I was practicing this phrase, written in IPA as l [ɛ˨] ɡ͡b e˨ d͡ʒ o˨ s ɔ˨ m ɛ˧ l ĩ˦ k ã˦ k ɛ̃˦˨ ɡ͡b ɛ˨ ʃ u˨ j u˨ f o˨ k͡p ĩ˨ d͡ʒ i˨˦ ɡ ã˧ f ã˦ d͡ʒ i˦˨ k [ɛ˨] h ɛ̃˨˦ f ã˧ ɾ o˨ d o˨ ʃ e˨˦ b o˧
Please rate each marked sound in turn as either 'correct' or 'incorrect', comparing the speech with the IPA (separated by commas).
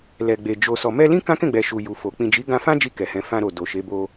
correct, correct